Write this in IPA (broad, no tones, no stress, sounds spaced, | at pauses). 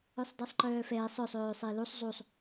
œ sˤ dˤ e sˤ ǃ œː f ɛː sˤ œ sˤ øː sˤ e l u sˤ zˤ u sˤ